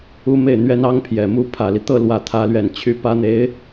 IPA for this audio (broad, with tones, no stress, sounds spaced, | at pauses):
u˥ m e˥˩ ɪ̯ n̪ ɥ ɛ˥ n ɑ˥ ŋ pʰ j ɛ˨˩ m u˥ pʰ ä˨˩ l i˦ t̪ ɤ˥˧ l w ä˥˩ t̪ʰ ä˥ l ɥ ɛ˥˩ n t͡ɕʰ y˥ p ä˥ n̪ e˧˥ ɪ̯